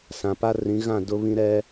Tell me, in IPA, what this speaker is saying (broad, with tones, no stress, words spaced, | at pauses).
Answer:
sã˨pa˦rĩ˨˦ ɣã˦˨ dʊ˦βĩ˦ɾɛ˦